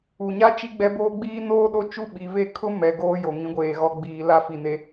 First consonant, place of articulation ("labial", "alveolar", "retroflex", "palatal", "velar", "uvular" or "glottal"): palatal